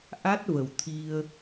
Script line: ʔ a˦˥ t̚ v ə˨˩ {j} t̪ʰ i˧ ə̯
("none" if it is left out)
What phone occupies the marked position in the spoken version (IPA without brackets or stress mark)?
w